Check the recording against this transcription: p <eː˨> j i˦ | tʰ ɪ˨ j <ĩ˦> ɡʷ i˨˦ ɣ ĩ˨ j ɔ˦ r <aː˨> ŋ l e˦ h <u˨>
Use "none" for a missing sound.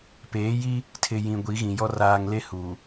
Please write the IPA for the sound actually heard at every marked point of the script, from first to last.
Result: eː˨˦, ĩ˨, aː˨, u˨

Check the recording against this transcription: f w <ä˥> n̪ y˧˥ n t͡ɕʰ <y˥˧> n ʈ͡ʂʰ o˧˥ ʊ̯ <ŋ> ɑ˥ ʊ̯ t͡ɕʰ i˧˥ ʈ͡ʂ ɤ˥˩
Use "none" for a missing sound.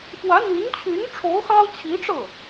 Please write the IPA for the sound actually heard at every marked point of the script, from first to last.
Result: ä˧˥, y˧˥, x

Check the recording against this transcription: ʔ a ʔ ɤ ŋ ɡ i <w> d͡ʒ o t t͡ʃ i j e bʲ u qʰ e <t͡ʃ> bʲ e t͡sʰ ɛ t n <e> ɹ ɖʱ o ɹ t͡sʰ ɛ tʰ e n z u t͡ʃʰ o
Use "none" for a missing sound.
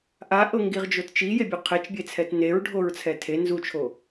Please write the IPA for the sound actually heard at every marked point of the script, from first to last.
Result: ʁ, t͡ʃ, e

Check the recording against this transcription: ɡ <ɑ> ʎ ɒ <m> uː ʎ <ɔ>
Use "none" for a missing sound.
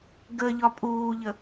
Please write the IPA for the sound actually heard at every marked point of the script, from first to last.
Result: ə, pʼ, ə

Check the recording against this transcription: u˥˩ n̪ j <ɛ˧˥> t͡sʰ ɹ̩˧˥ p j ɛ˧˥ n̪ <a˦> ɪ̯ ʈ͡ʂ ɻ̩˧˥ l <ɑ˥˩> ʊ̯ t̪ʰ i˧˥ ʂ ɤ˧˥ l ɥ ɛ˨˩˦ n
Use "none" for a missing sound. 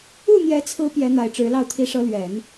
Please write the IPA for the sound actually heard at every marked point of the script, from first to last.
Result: ɛ˧˥, a˨˩, ɑ˥˩

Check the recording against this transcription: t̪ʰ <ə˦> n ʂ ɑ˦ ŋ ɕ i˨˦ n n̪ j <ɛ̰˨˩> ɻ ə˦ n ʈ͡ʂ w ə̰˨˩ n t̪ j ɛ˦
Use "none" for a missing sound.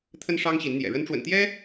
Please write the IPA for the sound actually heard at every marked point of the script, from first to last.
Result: ə˦, ɛ̰˨˩

